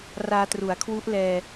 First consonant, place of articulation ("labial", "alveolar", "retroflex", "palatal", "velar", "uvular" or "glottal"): alveolar